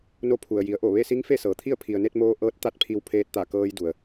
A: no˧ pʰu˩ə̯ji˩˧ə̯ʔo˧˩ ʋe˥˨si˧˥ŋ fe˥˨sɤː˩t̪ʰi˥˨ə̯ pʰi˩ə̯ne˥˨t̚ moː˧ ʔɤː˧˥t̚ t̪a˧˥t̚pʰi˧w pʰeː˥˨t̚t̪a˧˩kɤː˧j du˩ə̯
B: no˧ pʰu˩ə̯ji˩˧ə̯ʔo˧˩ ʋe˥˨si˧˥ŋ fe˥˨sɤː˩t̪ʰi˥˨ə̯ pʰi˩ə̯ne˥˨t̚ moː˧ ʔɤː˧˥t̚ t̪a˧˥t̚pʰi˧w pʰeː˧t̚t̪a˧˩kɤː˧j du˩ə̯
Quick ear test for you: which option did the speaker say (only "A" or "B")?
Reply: B